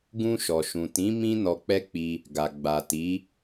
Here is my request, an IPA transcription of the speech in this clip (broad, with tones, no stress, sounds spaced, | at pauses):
ɡ ũ˧ ʃ ɔ˨ ʃ ũ˨ t ĩ˨˦ m ĩ˦ n ɔ˧ k͡p ɛ˦ k͡p i˧ | ɡ a˨ ɡ͡b a˨ t i˨˦